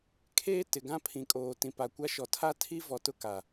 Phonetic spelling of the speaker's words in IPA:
kʰ eː˦ t ɪ˨ ɡ ã˦ pʰ ĩ˨ kʼ oː˨ t ĩ˨ p a˨ kʷ a˦ ʃ ɔ˨ tʰ a˦ tʰ i˦ v ɔ˨ t ʊ˦ k a˨

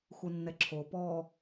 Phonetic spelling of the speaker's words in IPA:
x u nː ɛ ǁʰ o p ɔ

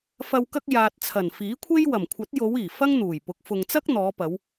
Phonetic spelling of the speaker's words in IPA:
f ɐ˨ w k ɐ˧ k̚ j aː˨ t̚ t͡sʰ ɐ˨˩ n f iː˨˥ kʷʰ e˥ j w ɐ˨˩ m kʷʰ ɐ˨˥ t̚ j o˨˧ w iː˨˩ f ɐ˥ ŋ n̪ uː˨˩ j p ʊ˨˥ k̚ f ʊ˨ ŋ t͡s ɐ˥ k̚ n̪ ɔː˨˧ p ɐ˨˧ w

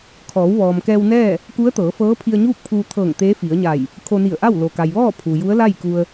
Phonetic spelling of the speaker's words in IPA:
kʰ ɔː˩˧ w ʋ ɔː˩ m k ɛː˧ w n ɛː˥˨ | k u˧˥ ə̯ t̪ ɤː˩˧ f ɤː˧˥ pʰ i˧ ə̯ ɲ uː˥˨ k̚ pʰ uː˧ t̪ʰ ɤː˧˩ ŋ t̪ eː˧˥ f i˩˧ ə̯ ɲ a˧˩ j | kʰ o˧ n i˧˩ ə̯ ʔ a˥˨ w l o˩ k a˩ j ʋ ɔː˥˨ pʰ u˩ j u˧˥ ə̯ l a˥˨ j k u˧ ə̯

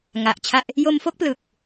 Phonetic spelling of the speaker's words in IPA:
ŋ a˨˩ ʔ t͡ɕʰ a˥˩ ʔ | j o˧ m f o˥˩ k̚ p l ɯ˨˩ k̚

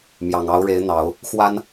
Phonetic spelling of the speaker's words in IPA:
m j ɑ˨˩ ŋ ɑ˧˥ ʊ̯ ɻ e˧˥ ɪ̯ n̪ ɑ˨˩˦ ʊ̯ | x w a˥ n

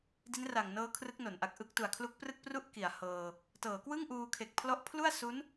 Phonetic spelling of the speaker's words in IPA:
d i˦˥ n r a˨˩ ŋ n ɤː˦˥ kʰ r ɯ˦˥ k̚ n o˩˦ n ʔ a˨˩ k̚ ʔ ɯ˦˥ k̚ t u˨˩ a̯ kʰ l u˦˥ k̚ p r ɯ˥˩ k̚ p r u˥˩ ʔ k i˨˩ a̯ h ɤː˧ | t ɤː˩˦ k w ɯ˥˩ ŋ ʔ uː˧ kʰ e˨˩ k̚ pʰ l ɔ˦˥ ʔ pʰ l u˥˩ a̯ s u˦˥ n

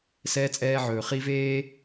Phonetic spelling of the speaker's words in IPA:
s ɛː˦ t͡sʼ ɛː˦ ʕ ɵː˨ χ i˦ v eː˦

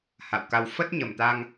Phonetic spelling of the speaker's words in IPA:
h a̰˧˨ w k a˧ w f ə˦˥ t̚ ɲ ə˧˩ m t̪ a˧ ŋ

